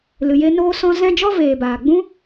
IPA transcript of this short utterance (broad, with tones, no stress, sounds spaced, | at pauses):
l ɨ˨ j e˧ n oː˦ s ɔ̃˦ z ɛ̃˦ d͡ʒ ɔ˦ v eː˨ b aː˨ ɡ͡b ũ˦